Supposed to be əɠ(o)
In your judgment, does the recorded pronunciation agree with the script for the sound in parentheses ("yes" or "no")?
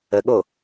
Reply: yes